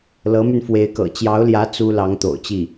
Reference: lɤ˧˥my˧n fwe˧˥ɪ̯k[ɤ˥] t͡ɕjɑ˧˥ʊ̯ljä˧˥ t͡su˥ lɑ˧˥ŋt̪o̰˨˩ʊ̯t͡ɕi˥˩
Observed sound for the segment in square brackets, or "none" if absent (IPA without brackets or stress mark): ɤ̰˨˩